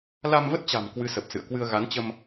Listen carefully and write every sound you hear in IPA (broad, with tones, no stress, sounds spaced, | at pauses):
l a˧ m v ə˦˥ t̚ t͡ɕ a̤˨˩ m k w ɨ˨˦ s ə˨˩ p̚ s ɨ̰˧˨ ə̯ k w ɨ˧ ə̯ ɣ a˨˦ n t͡ɕ ə˧ m